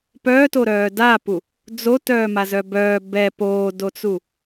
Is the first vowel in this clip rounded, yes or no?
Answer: yes